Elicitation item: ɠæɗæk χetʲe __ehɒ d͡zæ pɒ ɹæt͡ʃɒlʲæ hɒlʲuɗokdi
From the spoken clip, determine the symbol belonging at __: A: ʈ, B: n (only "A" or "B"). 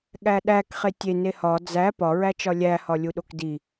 B